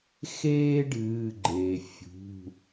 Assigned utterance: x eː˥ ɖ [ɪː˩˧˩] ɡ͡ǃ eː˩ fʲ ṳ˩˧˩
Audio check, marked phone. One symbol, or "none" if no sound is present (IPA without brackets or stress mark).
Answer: ɨː˩˧˩